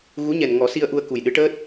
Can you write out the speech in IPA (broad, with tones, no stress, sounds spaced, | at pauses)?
ɣ u˧˥ ɲ ɛ˨˩ n ŋ ɔ˨˩˦ s i˧ ə̯ ʔ u˧ ə̯ k u˨˩ j ɗ ɨ˧˥ ʈ əː˦˥ t̚